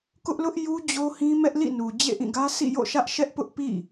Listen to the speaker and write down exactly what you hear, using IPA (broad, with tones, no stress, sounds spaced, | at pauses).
k ʊ˦ ʔ l ʊ˦ ʔ j u˦ d͡ʑ o˦ h ĩ˦ m ɛ˦ ʔ l ḭ˦˨ n u˨ d͡ʑ ḛ˦˨ ʔ ĩ˦˨ ɡ ä˦ s ḭ˦˨ j o̰˦˨ ʃ ä˦ ʔ ʃ ɛ˦ ʔ p ʊ˦ ʔ p ḭ˦˨